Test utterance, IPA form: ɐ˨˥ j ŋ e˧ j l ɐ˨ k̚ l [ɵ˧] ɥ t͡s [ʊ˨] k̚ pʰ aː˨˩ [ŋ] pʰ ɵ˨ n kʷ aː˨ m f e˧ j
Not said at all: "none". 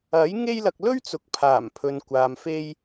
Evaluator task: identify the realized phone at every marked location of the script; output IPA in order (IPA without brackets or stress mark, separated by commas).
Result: ɵ˥, ʊ˨, m